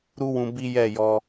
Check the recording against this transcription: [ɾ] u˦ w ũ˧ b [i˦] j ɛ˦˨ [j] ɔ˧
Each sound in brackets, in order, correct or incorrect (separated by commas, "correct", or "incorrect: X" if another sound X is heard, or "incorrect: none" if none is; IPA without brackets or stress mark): correct, correct, correct